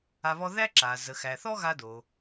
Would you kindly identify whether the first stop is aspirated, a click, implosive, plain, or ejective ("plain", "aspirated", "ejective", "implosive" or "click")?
click